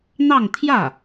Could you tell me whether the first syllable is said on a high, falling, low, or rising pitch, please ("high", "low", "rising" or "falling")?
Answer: falling